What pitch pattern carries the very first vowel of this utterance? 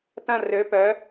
falling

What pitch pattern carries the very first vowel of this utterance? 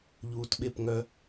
low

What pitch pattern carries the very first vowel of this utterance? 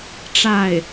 falling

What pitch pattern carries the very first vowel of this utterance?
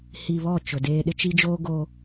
low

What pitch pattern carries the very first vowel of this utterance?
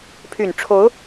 low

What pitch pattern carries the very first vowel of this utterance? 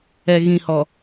low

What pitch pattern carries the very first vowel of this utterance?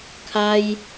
high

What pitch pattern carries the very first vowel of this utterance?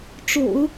low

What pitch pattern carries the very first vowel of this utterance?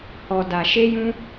low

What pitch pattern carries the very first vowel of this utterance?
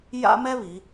high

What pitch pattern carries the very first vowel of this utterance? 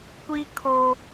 high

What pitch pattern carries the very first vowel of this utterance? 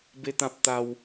high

